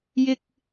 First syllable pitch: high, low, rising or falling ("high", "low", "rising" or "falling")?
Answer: high